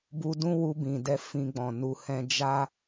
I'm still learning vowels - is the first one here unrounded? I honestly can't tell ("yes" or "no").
no